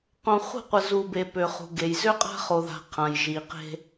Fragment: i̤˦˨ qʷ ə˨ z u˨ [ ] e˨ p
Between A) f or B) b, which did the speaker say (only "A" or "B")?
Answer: B